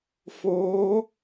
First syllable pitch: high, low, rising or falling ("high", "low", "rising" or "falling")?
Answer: rising